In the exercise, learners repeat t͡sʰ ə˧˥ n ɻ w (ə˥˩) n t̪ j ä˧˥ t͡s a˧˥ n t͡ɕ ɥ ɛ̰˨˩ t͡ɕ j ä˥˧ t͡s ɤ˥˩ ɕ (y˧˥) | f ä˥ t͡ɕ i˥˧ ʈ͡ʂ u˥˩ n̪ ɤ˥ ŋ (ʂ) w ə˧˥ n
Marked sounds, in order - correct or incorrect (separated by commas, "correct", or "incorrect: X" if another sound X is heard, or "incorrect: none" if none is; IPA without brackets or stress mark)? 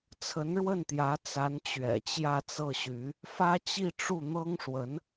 correct, correct, correct